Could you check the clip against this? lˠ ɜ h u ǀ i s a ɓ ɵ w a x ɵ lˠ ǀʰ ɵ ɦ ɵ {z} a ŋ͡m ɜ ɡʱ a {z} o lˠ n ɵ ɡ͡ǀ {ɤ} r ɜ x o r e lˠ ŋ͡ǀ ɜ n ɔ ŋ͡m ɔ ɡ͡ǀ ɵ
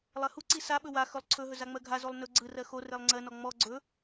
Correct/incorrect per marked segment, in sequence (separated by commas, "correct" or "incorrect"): correct, correct, incorrect